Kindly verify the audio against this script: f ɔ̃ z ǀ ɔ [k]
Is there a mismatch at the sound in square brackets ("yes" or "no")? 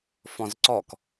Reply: no